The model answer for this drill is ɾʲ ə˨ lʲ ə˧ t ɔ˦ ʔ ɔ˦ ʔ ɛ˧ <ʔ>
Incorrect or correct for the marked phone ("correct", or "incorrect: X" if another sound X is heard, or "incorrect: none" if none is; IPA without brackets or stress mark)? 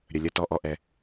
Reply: incorrect: none